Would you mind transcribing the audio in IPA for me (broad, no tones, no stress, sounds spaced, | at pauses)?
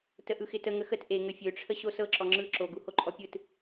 t ə ʔ ɯ x ɪ t ə ŋ ə x ə t ʔ e ŋ ə fʲ ø ʈ͡ʂʰ ə ɕ o s ɤ ǁ ɔ ŋ͡ǁ ɯ ǁ o ɡ u h o ǃʼ ɔ pʲ ɯ t